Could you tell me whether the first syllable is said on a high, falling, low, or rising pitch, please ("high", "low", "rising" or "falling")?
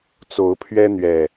rising